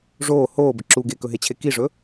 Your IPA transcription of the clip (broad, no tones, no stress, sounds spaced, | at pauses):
ʐ oː h oː b ə ǁ u ɡ e k ɵ ɦ e t͡ɕʰ e k i ʐ ɵ